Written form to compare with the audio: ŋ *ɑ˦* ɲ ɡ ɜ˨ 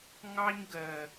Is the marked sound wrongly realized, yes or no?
no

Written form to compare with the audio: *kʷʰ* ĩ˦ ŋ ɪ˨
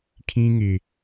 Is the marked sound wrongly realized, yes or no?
yes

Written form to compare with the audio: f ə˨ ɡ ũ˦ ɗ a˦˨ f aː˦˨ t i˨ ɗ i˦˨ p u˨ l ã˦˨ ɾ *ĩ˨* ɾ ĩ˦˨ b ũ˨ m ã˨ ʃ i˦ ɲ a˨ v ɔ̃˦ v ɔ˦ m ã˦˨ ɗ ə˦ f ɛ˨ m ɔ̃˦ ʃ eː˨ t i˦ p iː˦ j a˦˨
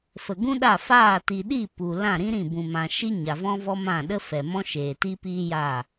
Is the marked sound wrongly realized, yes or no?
yes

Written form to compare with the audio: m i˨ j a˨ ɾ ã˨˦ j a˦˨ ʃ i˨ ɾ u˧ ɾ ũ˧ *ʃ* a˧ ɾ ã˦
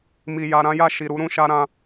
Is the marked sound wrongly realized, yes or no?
no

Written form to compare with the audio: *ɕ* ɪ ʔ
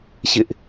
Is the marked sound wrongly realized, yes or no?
no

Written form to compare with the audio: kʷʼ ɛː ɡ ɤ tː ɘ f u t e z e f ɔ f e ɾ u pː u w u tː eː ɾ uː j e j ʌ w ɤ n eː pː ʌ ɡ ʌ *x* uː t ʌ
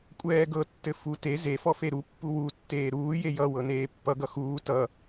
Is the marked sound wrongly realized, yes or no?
no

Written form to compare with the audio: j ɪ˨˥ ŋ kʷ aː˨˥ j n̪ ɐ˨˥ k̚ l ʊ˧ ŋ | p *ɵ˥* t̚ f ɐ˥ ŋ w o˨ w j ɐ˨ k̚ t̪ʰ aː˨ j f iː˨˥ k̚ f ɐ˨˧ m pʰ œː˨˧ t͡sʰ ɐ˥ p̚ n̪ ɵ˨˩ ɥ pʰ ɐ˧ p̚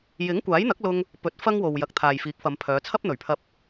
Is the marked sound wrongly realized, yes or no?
yes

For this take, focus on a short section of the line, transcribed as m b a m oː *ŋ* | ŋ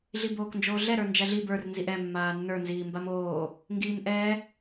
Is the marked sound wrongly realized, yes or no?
yes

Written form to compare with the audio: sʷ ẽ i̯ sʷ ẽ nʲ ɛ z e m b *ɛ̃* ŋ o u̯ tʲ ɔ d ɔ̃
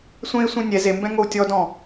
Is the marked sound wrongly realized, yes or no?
no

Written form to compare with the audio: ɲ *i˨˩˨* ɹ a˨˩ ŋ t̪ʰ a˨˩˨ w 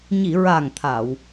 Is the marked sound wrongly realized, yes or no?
no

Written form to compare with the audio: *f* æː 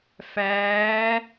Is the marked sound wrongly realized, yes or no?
no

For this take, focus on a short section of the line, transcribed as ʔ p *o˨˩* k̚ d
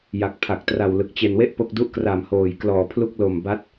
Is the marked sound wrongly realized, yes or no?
yes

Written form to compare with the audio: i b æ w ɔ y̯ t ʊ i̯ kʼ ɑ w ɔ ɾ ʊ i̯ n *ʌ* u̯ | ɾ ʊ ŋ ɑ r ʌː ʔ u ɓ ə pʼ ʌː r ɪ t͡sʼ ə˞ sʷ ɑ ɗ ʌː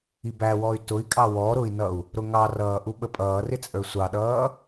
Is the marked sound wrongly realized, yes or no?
no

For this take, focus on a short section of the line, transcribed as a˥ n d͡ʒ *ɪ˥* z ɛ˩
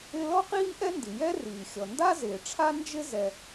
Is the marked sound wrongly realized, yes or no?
no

